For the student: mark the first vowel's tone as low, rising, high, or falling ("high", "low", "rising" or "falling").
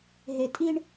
low